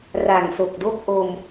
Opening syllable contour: low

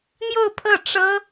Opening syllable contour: falling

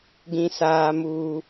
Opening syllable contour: high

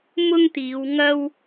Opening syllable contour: high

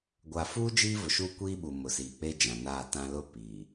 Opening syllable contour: low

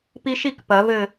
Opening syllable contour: high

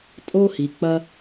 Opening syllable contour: high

